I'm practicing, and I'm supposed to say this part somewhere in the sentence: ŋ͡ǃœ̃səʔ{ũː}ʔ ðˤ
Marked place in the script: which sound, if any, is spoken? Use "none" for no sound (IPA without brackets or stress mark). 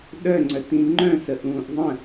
ũː